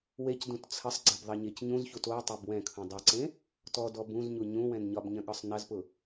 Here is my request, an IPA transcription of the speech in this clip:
wecdũt t͡sʰəsˤɡ͡ǀɛb ðˤɐɲecɲũzçut o tˤobwɛ̃kʰũ dˤɛǀẽ | tɔdɔ bũzɲu ɲũwɛ̃n ɲɒbɲɐ̃ ɠɒsˤnɐzpʊ

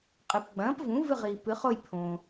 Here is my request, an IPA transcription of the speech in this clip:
qʼɨ˩pɡ͡bɐ̃ː˩˥pvũ˩˥ vɨ˦˨ʁiː˩pɨ˩˧χo˦˨j pʰõː˩

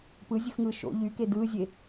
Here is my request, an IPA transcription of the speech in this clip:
pɯzʲɯxŋɯː ʃo̰ ʎyke dɯːzʲe

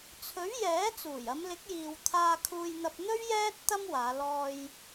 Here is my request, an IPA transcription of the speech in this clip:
t͡sʰɵ˨˥ɥjɛː˨˥ t͡suː˨˩jɐ˨˧mlɪ˨˥k̚jiː˨w t̪ʰaː˧kʰuː˧jn̪ɐ˧p̚n̪ɵ˥ɥ jɛː˥t̚ t̪ɐ˥mwaː˨˧ lɔː˧j

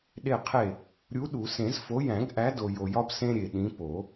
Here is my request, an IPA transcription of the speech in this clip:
ɗe˥˩qʰe˥˩ | ɾʲu˨˥ɗu˨˩˦sẽ˨˩˦z fo˨˥jæ̃˨˩˦ɡʔæ˨˥do˨ jo˨jɒ˦b sẽ˦ ɾʲe˨ ɗĩ˨˥ po˨˩˦

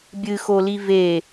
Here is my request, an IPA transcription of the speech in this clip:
bʲɨxoli ve

